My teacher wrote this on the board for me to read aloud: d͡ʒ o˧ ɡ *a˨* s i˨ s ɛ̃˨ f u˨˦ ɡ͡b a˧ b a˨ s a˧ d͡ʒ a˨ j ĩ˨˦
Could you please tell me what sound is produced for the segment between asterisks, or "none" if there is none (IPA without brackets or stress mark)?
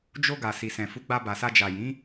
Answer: a˨